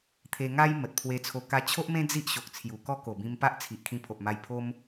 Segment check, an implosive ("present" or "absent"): absent